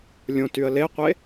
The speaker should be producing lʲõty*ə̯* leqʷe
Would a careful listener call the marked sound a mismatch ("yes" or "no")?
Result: no